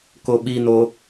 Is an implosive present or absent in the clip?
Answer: present